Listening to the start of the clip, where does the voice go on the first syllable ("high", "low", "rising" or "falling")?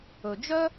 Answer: low